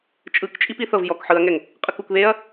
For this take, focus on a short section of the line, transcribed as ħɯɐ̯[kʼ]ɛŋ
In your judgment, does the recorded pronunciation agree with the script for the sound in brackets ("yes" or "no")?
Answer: no